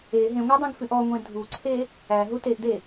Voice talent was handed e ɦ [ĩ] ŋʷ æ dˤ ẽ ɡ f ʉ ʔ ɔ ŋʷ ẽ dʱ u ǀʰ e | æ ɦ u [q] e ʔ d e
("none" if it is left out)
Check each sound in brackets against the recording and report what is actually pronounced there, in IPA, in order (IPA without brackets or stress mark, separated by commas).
ẽ, t